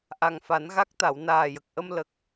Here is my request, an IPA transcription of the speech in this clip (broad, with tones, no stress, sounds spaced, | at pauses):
ʔ a˨˩ ŋ f a˨˩˦ n ɣ a˦˥ k̚ t̪ a˨˩˨ w n aː˨˩ j ə˨˩ k̚ ʔ ə˧ m l ə˨˩ k̚